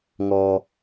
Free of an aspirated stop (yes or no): yes